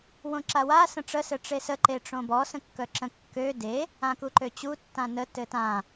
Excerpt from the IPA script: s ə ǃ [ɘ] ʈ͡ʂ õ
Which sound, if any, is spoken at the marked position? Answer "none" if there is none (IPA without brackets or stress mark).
e